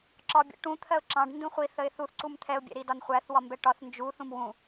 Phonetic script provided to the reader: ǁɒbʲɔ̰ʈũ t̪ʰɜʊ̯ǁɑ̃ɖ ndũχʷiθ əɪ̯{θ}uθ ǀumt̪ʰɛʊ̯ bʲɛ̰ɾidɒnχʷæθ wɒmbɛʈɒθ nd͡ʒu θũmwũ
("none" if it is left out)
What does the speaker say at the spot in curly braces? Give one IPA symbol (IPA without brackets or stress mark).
θ